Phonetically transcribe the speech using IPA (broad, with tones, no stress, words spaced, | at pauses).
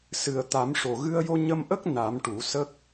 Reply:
sɨ˨˩ə̯ t̪a˨˩˦mʂo˨˩ ɣɨ˧ə̯jo˧ ɲə˧mʔə˦˥k̚ na˨˩˦m ʈu˨˩˦ sə˦˥k̚